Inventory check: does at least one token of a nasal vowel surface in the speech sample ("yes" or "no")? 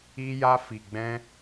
yes